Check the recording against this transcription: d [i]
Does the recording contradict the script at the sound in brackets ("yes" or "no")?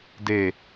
yes